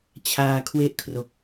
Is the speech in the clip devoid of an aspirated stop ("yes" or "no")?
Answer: no